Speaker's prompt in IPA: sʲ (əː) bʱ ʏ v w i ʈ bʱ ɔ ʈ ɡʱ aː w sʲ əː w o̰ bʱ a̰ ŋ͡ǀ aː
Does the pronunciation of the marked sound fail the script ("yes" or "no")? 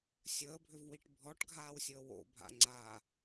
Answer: no